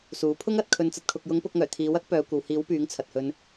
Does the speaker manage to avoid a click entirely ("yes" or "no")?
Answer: yes